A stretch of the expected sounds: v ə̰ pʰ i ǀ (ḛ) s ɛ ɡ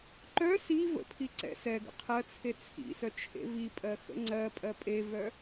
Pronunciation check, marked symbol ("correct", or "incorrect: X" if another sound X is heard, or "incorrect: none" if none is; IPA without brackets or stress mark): incorrect: ɛ̰